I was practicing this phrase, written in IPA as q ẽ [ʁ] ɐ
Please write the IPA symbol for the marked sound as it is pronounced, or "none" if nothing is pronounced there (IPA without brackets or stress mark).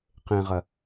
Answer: ʁ